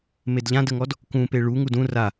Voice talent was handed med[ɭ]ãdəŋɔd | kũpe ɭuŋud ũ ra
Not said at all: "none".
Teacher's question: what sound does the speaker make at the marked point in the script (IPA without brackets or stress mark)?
ʎ